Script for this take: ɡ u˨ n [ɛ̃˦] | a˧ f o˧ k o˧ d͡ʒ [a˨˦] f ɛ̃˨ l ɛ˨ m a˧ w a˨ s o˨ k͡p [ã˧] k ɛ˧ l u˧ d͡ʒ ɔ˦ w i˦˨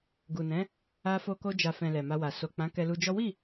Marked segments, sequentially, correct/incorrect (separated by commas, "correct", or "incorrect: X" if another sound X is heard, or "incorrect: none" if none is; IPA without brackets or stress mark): incorrect: ɛ̃˨˦, incorrect: a˨, incorrect: ã˨˦